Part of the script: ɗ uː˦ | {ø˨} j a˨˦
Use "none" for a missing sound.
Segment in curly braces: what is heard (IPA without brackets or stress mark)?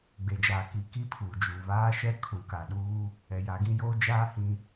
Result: ɛ˨